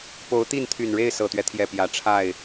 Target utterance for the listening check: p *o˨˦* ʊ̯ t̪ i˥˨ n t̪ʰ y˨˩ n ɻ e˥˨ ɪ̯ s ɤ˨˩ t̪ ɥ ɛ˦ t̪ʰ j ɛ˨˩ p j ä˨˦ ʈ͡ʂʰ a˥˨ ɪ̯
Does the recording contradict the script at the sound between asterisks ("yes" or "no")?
no